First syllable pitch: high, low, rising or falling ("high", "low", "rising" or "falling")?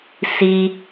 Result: high